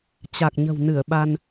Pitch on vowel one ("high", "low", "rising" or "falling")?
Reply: low